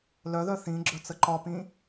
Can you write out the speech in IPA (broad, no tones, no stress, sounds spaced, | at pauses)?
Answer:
l œ ð œ θ ĩ ɡ͡ǁ œ t͡s ə ǃ ɒ p ĩ